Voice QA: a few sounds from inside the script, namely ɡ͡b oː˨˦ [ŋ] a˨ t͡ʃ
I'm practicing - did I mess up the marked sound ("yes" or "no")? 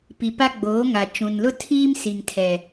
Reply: no